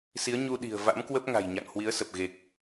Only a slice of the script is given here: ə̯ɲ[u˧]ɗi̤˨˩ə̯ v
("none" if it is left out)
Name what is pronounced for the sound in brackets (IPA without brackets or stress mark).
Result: u˧